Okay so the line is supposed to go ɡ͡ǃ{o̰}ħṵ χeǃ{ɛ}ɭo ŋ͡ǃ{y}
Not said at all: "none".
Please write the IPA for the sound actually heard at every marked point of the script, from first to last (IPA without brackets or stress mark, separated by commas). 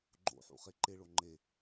o̰, e, e